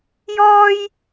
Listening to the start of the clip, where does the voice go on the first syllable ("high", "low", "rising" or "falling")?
high